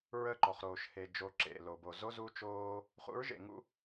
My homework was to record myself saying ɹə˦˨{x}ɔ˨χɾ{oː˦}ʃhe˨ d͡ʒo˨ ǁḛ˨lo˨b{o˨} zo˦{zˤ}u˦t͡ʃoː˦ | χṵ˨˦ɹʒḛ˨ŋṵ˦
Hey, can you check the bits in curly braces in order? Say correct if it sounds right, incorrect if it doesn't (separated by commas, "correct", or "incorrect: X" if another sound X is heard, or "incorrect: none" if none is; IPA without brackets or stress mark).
incorrect: ǃ, incorrect: oː˨, correct, incorrect: z